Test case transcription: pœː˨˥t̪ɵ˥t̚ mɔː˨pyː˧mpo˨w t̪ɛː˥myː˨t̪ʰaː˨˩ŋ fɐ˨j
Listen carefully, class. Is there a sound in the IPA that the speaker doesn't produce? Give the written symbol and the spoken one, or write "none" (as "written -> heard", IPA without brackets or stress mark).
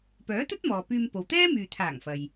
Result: none